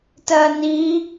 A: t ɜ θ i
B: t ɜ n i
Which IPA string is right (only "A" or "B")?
B